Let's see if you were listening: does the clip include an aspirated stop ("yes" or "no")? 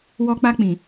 no